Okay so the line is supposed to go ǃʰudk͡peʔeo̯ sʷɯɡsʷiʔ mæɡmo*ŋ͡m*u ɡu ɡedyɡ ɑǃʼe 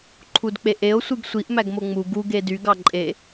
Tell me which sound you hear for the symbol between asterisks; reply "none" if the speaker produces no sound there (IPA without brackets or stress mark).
ŋ͡m